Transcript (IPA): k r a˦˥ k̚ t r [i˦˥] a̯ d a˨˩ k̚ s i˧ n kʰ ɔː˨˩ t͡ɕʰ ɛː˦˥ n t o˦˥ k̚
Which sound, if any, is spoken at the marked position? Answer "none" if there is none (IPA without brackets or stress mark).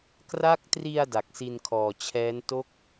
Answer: i˧